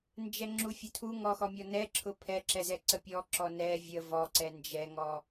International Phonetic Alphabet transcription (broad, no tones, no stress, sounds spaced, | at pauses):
n d͡ʒ ɛ ŋ͡ǁ u fʲ ʊ tʰ u ŋ ɔ x ɔ mʲ ɔ n ɛ ǁʰ ʊ pʰ ɛ ǁ ɛ z ɛ ǀ ə pʲ ɔ ǁ ɔ n ɛ vʲ ə v ɔ ǀ ɛ n d͡ʒ ɛ ŋ ɔ